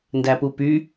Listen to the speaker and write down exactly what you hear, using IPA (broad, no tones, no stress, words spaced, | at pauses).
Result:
ndæpupy